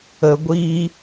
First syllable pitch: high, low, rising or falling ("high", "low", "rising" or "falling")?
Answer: low